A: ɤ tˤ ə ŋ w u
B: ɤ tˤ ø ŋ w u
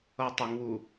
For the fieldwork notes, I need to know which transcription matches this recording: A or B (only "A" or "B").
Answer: A